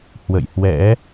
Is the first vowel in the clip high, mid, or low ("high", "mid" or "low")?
mid